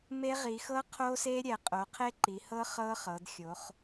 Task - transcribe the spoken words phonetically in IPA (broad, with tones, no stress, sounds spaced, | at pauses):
m e˦˥ ʁ i˩˧ x ɤ˦˥ qʰ o˦˥ s e˦˥ ɾʲ ɛ˩˧ qʼ o˩˧ qʰ e˦˥ ǃ i˩˧ h ɤ˦˥ χ ɤ˦˥ χ ɤ˩˧ d xʲ o˩˧ χ